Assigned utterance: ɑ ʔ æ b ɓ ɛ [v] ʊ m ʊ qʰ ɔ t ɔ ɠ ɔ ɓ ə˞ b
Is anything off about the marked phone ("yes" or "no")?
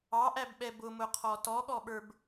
yes